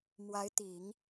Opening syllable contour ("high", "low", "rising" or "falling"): rising